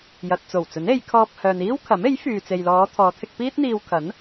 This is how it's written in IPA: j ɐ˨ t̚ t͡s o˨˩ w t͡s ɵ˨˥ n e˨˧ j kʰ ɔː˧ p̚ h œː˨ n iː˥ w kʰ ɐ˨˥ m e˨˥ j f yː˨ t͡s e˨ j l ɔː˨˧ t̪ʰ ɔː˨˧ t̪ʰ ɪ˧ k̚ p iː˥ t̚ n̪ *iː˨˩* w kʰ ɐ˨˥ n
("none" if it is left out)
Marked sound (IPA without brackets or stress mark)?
iː˧